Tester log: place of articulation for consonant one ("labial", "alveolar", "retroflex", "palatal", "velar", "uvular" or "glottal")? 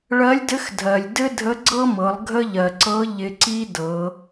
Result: retroflex